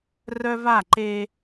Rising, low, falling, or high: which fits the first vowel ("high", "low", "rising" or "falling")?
high